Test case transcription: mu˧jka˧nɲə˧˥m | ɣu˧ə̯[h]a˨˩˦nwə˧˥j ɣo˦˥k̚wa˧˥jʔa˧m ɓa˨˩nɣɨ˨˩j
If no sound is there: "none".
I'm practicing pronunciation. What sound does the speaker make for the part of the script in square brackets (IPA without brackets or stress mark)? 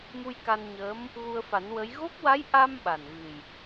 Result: f